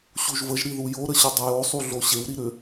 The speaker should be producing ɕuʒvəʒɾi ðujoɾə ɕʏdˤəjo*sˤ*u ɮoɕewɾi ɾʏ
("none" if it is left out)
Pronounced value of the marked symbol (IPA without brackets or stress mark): sˤ